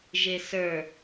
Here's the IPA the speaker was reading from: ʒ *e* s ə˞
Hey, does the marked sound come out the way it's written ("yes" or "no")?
yes